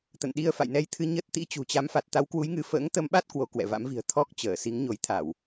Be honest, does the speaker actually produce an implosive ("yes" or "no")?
yes